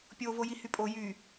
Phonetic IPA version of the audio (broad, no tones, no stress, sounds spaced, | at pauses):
pʲ o v o j i h y pʼ o j y